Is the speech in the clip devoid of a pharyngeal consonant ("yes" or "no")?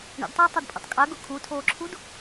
yes